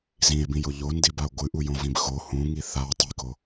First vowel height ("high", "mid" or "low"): high